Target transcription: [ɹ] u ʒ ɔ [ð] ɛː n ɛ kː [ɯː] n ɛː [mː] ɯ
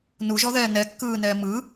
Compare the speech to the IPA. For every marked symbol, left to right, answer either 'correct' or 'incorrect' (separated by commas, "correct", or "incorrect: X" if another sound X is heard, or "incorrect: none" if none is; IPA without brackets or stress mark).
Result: incorrect: n, correct, correct, incorrect: m